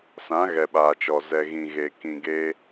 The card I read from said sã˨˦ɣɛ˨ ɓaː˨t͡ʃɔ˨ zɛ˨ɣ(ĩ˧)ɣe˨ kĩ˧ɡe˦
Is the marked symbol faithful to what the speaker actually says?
no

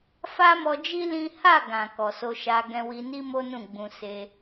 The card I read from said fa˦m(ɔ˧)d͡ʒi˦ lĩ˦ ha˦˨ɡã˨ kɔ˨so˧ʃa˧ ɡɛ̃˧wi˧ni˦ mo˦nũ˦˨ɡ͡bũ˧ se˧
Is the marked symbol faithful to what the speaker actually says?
yes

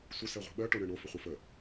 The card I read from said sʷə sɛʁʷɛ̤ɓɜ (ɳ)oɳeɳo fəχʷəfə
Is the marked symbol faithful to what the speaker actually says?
no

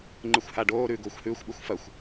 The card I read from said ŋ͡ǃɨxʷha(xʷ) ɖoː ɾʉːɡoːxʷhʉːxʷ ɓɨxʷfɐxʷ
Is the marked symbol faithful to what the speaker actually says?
no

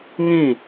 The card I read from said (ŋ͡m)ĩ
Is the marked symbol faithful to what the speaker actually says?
no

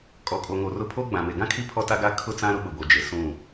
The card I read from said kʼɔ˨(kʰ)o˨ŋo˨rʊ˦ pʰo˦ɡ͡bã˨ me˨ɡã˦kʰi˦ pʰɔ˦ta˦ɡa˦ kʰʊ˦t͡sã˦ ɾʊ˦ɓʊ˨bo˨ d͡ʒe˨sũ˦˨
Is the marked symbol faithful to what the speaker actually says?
no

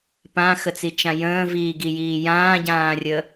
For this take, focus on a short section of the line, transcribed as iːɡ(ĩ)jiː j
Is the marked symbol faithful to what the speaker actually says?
no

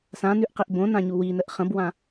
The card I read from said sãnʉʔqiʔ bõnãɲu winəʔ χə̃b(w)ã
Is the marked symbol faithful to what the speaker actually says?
yes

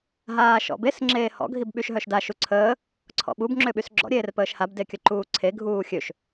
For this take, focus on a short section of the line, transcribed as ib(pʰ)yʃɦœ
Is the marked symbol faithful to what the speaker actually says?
no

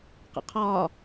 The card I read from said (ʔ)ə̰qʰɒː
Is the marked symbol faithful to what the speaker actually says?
no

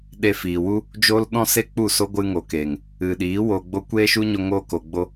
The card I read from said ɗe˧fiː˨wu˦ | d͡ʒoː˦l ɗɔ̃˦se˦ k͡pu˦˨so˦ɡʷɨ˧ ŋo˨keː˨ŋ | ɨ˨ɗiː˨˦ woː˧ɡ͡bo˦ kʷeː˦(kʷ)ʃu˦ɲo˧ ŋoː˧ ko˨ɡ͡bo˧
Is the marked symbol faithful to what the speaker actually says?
no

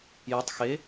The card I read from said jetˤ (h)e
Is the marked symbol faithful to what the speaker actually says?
no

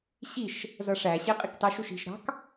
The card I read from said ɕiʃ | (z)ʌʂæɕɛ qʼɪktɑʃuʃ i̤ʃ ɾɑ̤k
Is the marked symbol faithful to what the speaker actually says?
yes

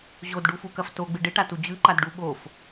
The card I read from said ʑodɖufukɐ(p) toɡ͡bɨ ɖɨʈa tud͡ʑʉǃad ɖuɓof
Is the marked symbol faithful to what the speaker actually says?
no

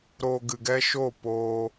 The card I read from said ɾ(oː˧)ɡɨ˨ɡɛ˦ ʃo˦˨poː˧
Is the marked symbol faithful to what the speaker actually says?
yes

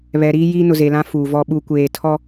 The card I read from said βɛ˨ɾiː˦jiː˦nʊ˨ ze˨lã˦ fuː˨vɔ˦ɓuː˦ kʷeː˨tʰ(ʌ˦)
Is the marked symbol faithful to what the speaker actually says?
no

